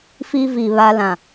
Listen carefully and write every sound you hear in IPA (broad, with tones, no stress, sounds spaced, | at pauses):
f i˦ v i˨ β a˦ l ã˨